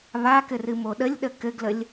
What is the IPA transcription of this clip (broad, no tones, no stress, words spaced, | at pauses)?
βakɘrɨmo ɗəlʲɗə kɘɡləlʲ